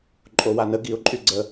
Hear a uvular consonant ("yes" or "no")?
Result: no